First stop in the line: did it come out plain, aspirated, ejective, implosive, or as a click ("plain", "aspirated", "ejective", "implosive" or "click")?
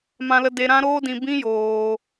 plain